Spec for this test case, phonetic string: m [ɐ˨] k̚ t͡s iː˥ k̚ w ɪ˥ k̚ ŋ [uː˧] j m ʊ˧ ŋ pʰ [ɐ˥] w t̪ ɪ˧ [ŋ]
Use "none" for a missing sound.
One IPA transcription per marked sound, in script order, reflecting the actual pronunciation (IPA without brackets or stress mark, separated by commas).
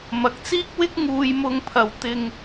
ɐ˨˥, uː˧, ɐ˨, ŋ